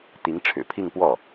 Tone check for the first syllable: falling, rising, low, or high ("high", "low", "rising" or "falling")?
rising